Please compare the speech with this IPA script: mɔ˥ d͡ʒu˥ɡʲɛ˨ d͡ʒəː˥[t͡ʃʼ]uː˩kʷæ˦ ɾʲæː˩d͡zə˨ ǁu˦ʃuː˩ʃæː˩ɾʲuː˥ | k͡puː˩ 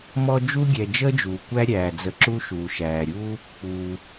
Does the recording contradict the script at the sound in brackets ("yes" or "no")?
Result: yes